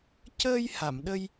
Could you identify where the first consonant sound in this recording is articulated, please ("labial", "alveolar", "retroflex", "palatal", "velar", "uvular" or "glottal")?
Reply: palatal